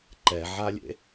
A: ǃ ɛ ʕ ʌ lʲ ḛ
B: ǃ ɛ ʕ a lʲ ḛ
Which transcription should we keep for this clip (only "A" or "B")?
B